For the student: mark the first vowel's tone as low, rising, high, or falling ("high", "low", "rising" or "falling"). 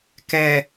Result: low